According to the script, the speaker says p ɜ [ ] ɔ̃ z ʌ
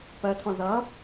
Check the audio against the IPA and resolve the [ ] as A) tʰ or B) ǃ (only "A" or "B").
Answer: A